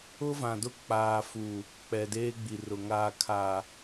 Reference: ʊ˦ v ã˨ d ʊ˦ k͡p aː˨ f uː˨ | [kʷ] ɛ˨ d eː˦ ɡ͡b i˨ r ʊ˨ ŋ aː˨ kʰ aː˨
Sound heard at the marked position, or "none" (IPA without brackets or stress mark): k͡p